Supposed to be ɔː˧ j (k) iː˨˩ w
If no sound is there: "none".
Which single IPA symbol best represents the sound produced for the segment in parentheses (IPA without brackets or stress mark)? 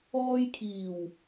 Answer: kʰ